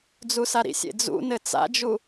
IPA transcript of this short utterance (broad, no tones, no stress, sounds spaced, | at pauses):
d͡z u s a ɾ ḭ sʲ ḛ d͡z ṵ n ɘ t͡s a̰ d͡ʒ u